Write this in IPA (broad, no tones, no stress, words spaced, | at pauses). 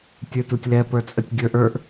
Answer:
tʲə˞tutʲlɛ pə˞t͡sʼətʲɡʲə˞ʔ ə˞ʔ